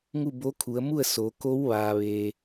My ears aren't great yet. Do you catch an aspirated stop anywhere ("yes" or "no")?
yes